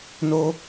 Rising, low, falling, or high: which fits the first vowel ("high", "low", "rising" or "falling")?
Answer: high